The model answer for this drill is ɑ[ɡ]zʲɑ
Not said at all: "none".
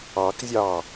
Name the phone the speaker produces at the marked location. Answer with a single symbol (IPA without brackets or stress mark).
k